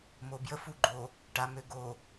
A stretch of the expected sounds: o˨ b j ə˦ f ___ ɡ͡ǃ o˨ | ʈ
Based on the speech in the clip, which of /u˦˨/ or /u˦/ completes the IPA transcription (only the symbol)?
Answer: u˦˨